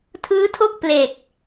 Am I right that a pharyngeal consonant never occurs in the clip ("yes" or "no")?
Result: yes